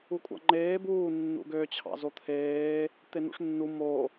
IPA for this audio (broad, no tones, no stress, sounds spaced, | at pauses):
u kʷʼ ɑ̰ ŋ͡ǃ eː b uː nː ṵ ɡ ø t͡ɕʰ ɑ̰ z o t̪ʰ eː | t̪ e n ṵ ʂ nː u m o